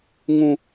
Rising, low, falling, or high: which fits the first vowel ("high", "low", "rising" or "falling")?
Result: low